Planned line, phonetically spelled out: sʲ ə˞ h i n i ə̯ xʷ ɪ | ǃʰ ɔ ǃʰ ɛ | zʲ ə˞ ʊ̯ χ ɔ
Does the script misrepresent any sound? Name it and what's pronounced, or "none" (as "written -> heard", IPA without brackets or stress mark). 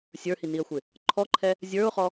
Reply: none